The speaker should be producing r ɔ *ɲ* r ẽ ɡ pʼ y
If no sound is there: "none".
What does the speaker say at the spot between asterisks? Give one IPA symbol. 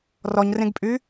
ɲ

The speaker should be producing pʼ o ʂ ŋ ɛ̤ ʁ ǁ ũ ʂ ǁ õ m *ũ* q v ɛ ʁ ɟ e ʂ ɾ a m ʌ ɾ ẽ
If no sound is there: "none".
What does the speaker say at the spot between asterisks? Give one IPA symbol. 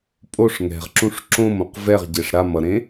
õ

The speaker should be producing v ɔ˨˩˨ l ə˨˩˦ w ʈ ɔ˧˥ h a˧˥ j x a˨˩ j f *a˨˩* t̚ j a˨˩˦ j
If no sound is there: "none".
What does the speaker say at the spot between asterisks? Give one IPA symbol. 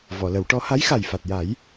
a˨˩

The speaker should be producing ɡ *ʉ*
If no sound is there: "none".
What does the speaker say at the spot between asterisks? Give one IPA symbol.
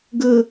ə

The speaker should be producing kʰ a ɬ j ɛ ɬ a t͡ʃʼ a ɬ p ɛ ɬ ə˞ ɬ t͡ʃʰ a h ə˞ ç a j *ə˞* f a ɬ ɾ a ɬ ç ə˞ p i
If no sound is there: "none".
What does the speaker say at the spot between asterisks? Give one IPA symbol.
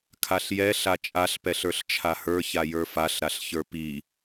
ə˞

